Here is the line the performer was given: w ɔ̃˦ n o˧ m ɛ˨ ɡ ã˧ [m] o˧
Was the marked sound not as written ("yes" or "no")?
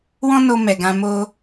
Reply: no